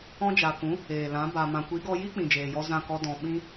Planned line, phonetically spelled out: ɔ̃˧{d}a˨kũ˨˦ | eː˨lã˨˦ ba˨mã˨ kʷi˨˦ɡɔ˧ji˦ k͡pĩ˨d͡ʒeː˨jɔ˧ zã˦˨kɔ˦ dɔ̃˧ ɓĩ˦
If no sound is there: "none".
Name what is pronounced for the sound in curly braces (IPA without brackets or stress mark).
d͡ʒ